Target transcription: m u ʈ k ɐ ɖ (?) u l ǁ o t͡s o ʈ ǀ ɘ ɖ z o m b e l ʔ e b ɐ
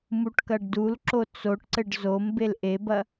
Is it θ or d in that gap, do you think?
d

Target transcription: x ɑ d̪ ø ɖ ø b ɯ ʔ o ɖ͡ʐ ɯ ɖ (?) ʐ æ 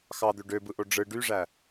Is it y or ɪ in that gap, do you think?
y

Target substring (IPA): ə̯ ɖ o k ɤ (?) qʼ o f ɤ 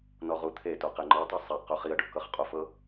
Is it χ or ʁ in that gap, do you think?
χ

